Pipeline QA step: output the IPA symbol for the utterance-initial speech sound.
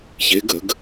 ç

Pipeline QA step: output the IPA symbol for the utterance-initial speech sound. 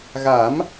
ɣ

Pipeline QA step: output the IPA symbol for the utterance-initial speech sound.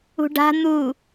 ṳ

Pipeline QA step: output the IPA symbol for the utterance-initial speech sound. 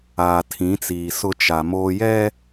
aː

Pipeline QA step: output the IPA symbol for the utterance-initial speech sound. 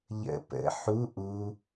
ʎ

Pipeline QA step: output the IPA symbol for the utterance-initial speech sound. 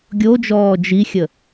ɡʲ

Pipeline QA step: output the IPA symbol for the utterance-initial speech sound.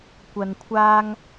kʷ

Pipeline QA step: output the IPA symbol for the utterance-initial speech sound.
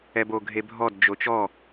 ɛ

